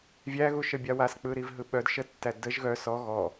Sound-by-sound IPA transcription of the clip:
vʲæɣuʃəbʲa wask͡pɯɾiv ɦɯɓœd ʃətːæ dəʒ ɣœ sɔ ɣɔ

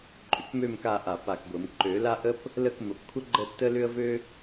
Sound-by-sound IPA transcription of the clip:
ǃʼʏ˧˩kmø˥˧m ka˥˧ʔa˧˩ pa˧˩kɡʷə˨˩˦m ǃø˨˩˦la˥ʔə˥p | lə˥˧k mə˨˩˦pkʷʰə˥ ɡ͡ǃə˥˧tːə˥ lʏ˥ə̯vø˥

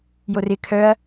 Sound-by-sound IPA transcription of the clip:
jorɪ kʰœɐ̯

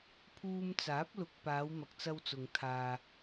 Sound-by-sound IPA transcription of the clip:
pʰuː˧mt͡saː˨˥p̚lʊ˨k̚ paː˨˧wmɐ˨k̚t͡sɐ˧wt͡sʊ˨ŋ t̪ʰaː˨

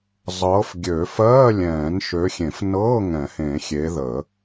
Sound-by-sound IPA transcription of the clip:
zˤɤː˨˦fɡʲø˨˩˦fɜː˧˥˧ lʲɛ̃ː˨˩˦nʃø˨˦xʲẽ˨˩˦fnɤː˧˥˧ ŋɛ̃˨˩˦hẽ˨˩˦xʲe˨˦ðə˨˩˦

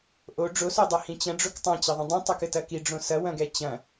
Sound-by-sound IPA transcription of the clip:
ʔo ɖ͡ʐosodˤɐhĩ t͡ɕɐ̃ɖ͡ʐok tˤɐ̃t͡ɕɐðˤɛ̃ dˤĩtˤokɘtɐ kiɖ͡ʐõ sɐwɐ̃ɡɛ t͡ɕɐ̃

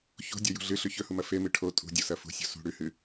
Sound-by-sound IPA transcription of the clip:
ço̤dʲojṳ ɮɨɬʉ çɵhumɐ femɨ ʈʰo tʼṳdʲosɐ fṳsʲo̤ sṳ ɽʉhɨ

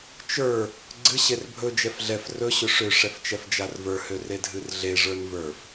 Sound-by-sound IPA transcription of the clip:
t͡ʃə˞ | ɡ͡ǀɨ ɕerbʱɵ d͡ʒɛfɮɛf rɵ ɕɵʂø ʂɛft͡ʃɛfd͡ʒarvə˞ høredʱɨrɮe ʐə˞nvə˞f

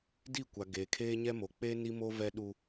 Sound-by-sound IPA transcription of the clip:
di˦˨kʷa˨ ɡe˨ kʰeː˦ɲɛ˦mo˨ k͡pe˦ ni˦mo˦ vɛ˦ɗu˦

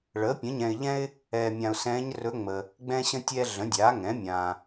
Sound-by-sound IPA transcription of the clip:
ɭəː˩˥pʲə̃˩˥ɲɛ̃˨ɪ̯ʎɛ̃˥ɪ̯ | ɛː˨mʲã˨ʊ̯sɛ̃ː˧˥ɲrɵ˧˥ ŋ͡mə˨ | ɡ͡bɛ̃˥ɕə̃˥tʲɛː˥ ɮə̃˩˥dʲaː˩˥ŋɛ̃ː˩˥ mʲãː˨

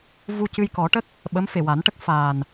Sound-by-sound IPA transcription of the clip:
vu˧cɨ˧jkɔ˨˩˦ʈə˦˥k̚ | ɓə˧˥mfe˨˩ wa˨˩˦nʈə˦˥k̚faː˨˩n

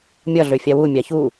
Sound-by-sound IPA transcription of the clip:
mʲʌ ɮøfʲawu mʲaçu

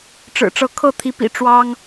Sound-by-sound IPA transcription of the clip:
ʈ͡ʂɻ̩˨˩ʈ͡ʂɤ˨˦kʰɤ˥˨ t̪ʰi˨˦pḭ˨˩ ʈ͡ʂwɑ˦ŋ

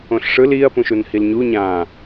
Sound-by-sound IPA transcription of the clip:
õɬʂɯl iɐ̯ pũʃunhilɲu ɲãː

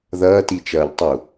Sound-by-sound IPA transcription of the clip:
ðɐːtit͡ʃɐːʎtˤu

